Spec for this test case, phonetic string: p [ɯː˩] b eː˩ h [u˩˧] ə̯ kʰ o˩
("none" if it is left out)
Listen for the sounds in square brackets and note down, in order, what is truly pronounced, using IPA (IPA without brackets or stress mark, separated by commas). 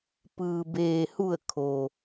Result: ɯː˩, u˧˩